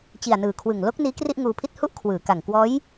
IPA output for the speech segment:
t͡ɕ i˨˩ a̯ n ɯː˨˩ kʰ w ɯ˨˩ ŋ l o˦˥ k̚ n iː˦˥ k r i˥˩ ʔ ŋ uː˧ pʰ i˥˩ t̚ h u˥˩ ʔ kʰ w ɯː˩˦ k a˨˩ ŋ k w ɔː˦˥ j

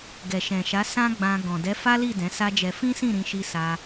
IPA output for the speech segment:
ɡ ɛ˨ ʃ ɛ̃˨ ʃ a˨˦ s ã˦ ɡ͡b ã˧ ɡ ɔ̃˨ d ɛ˨˦ f a˦ l i˦˨ d ɛ̃˨˦ s a˦ d͡ʒ ɛ˧ f ĩ˦ s ĩ˦˨ ɾ ĩ˧ ʃ i˧ s a˧

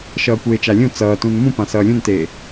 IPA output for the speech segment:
ʃ ʌː kʷ eː t͡ʃ a lʲ ũ t͡s ʌː t ũ n m ũ p ã s ʌː lʲ ũ n t eː

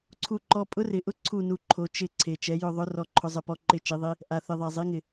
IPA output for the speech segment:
ǀʰ u˦˨ ǃ ɔ˦˥ pʼ ʊ˦˥ r ɪ˨˦ ʔ ʊ˦˥ ǀʰ u˦˨ n u˨˦ ǃʰ o˨˦ t͡ʃ ɪ˦˨ ǀʰ e˨˩ t͡ʃ ɛ˨˦ j ʊ˦˨ ðˤ ʊ˦˥ r ɔ˦˨ ǃʰ ʊ˦˥ zˤ ɪ˦˨ p ɔ˦˥ ǃ ɪ˦˨ t͡ʃ i˨˦ ðˤ i˦˥ | ʔ a˨˩ θ ɪ˨˩ ðˤ ɛ˨˩ zˤ i˨˦ ŋ ɪ˨˩

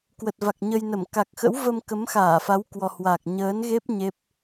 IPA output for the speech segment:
k w ə˨˩ t̚ v a˨˩ k̚ ɲ ə˧ j n ə˧˩ m k a˨˩ k̚ x ə̰˧˥ w v ə˧ m k ə˨˦ m x aː˧˩ f a˨˦ w k w ɔ˨˩ h w a˨˩ k̚ ɲ əː˨˦ n ɣ e˦˥ p̚ ɲ e˦˥ p̚

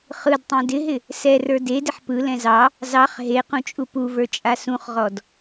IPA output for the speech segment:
χ ɯ d tˤ ɛ̃ d ɪ ɦ ɪ | s ɛ r ə˞ d e d ɪ ħ p ɯ l ɛ̃ z ɑ | z ɑ χ ɦ e q ũ t͡ʃʼ u p u v ə˞ t͡ʃʼ a s ũ χ ʁ ɔ d

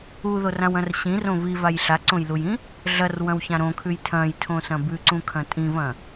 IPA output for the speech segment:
u ð o r ã w ɐ̃ r ɕ ĩ r õ v i v a j ɬ a ǀ õ j l u j ĩ | ɮ ɐ r w ɐ̃ w ç ã ɾ õ kʰ ʉ j tʰ ɐ̃ j tʰ õ s ɐ̃ b ʉ ǀ ũ kʰ ɐ̃ tʼ ĩ v ɐ̃

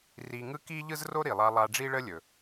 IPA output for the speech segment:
r i˧ ŋ ɯ˥ k i˥ ʎ ɯ˥ z r o˥ ɾ i˩ lˠ a˧ lˠ a˧ ɖ͡ʐ i˥ ɭ ə˥ lʲ ɵ˩

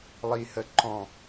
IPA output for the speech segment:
lˠ i h ə ǃ ɔ̃

